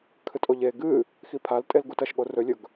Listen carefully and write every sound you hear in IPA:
kʰɨtʼoʎe ɡɨ | xipʰaltʼel ɡutɐʃɠo rɵlʲɵɡ

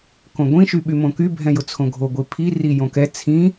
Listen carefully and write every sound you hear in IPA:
kõɡʷĩ ʃyɓymõky bʱɛ̃jʊt͡sʰõɡʱo ɡʷipʰi rijõkɛ t͡sʰĩ

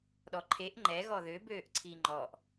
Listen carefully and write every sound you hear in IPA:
ɗɔǃʰeʔ ŋ͡ǃɛ ɣɔðø bøːʔǀʰiŋ͡ǃɔʔ

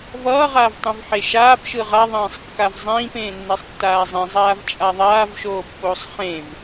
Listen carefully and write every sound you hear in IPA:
vʌːʁaːvtˤĩv ħeʃaːp ʃɯʁaðˤẽːsˤkːav zˤĩːpẽː nːɛsˤtːaːzˤĩ zˤaːvt͡ʃʼaðˤaːvʃoː pːoːsˤχẽv

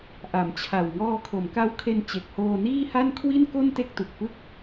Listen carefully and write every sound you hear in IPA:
ʔa˨˩m t͡ɕʰa˨˩w ŋɔː˧kʰo˩˦mka˦˥wkʰe˧n t͡ɕe˨˩k̚hoː˧niː˥˩ha˥˩n kʰwi˥˩nko˥˩n te˥˩k̚tu˨˩k̚pɯ˥˩k̚

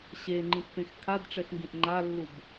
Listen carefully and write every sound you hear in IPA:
ɕeŋ͡ǃĩpːẽx kʰadʈ͡ʂɛxŋɡĩʔ ŋ͡ǃalːub

